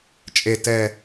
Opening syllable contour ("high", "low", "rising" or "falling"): low